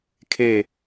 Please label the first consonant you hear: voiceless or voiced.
voiceless